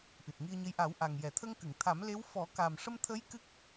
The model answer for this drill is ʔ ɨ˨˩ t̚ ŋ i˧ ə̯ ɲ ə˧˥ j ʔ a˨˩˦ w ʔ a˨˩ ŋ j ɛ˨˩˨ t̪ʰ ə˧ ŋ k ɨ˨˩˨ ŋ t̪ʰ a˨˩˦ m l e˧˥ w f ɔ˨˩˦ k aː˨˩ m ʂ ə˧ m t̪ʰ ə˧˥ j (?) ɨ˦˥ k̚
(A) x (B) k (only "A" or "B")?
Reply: B